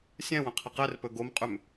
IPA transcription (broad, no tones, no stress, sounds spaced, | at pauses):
sʲ ɛ̃ w ə̃ qʰ ə q ɛ r p ɵ ɡ o m qʼ ʏ m